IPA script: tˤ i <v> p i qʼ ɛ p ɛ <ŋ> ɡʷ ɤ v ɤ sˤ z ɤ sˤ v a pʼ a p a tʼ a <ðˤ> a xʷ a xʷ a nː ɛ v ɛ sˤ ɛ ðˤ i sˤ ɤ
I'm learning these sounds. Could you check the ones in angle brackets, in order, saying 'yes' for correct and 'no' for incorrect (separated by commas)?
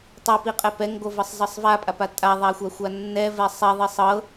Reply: no, yes, yes